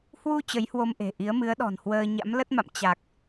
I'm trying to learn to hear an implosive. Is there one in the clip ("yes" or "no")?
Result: yes